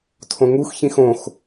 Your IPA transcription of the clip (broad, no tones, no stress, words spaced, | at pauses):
tʰõŋux çĩxõx